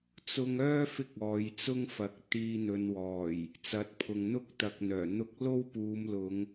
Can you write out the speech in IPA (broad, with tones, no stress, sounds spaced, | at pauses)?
t͡s ʊ˧ ŋ œː˥ f ɪ˧ k̚ ɔː˨˧ j t͡s ʊ˥ ŋ f ɐ˨˥ k̚ t̪ iː˧ n̪ ɵ˨˧ n w ɔː˨˩ j | t͡s ɐ˨˥ t̚ pʰ ʊ˨ ŋ n̪ ʊ˥ k̚ t̪ ɐ˧ k̚ n̪ œː˨˩ n̪ ʊ˧ k̚ l o˥ w p uː˨˧ m l ʊ˨˧ ŋ